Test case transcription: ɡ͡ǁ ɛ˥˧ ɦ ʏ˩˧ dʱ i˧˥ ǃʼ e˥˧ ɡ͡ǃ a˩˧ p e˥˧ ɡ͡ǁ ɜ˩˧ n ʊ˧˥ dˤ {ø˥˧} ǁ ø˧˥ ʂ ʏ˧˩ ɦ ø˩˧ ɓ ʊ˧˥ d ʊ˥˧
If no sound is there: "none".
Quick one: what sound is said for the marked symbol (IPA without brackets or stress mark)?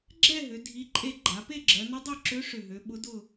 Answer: ø˥˧